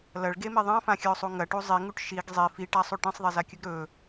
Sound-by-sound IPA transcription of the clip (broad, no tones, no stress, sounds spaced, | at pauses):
l ɐ ɭ ɡ e m i ðˤ ã f ã xʲ ɵ ʊ̯ sˤ u ŋ ɐ ʈ u zˤ i ŋ u ʈ ʃ i ɡ zˤ i f i ʈ a sˤ u ʈ ẽ sˤ ðˤ e z a kʲ ɵ ɡ ɾ ɵ